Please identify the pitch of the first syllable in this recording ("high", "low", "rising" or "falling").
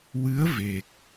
rising